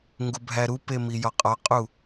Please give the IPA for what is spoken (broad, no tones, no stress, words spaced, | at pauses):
ŋɡubʱæɾupe mijɒqʼɒqʼu